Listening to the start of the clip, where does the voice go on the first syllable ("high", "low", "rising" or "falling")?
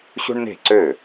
high